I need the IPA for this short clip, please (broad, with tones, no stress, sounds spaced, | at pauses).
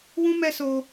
w ũ˦ m ɛ˦ s o˧